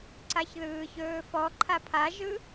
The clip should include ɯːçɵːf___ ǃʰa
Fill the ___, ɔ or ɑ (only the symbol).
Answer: ɔ